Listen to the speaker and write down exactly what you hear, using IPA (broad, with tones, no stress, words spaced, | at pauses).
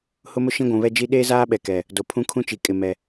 hʊ˦mʊ˦ ʃĩ˦ɡʷũ˨βɛ˦d͡ʒi˦ ɗeː˦zaː˦ɓɛ˨ kɛ˨ | do˨pʰũ˦kʰũ˦t͡ʃi˨ kʼɪ˨mɛ˨